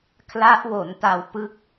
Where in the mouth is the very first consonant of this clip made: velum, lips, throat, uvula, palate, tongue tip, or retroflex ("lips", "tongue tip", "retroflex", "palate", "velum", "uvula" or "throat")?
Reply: velum